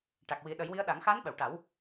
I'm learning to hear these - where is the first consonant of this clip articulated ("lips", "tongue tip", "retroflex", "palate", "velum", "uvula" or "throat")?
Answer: retroflex